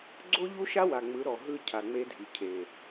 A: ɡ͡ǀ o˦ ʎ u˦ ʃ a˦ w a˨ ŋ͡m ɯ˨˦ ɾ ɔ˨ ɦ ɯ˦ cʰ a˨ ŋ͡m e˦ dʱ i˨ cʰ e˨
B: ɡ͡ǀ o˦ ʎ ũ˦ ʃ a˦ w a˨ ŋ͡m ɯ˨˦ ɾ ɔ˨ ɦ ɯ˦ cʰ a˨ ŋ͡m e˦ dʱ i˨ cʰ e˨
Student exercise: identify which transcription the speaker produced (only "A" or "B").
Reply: A